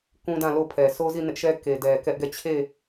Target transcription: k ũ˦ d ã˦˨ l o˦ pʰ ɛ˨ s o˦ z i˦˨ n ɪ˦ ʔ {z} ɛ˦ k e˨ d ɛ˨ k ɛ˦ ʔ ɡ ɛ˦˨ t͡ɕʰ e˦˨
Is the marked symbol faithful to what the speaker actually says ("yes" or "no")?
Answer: no